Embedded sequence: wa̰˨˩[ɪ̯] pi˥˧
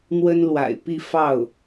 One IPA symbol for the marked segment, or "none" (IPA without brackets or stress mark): ɪ̯